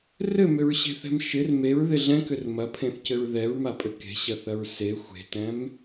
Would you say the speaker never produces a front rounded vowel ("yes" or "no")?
no